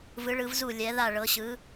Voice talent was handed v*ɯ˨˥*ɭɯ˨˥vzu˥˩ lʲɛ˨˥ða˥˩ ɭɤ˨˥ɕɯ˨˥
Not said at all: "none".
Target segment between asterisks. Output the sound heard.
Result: ɯ˨˥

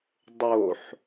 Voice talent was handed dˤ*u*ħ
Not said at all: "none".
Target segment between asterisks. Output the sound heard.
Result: o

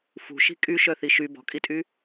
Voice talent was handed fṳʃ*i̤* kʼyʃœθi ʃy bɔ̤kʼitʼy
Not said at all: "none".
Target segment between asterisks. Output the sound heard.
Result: i̤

